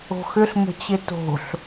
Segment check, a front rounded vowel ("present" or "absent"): present